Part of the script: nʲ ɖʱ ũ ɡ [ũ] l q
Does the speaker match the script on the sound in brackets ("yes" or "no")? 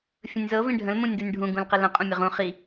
yes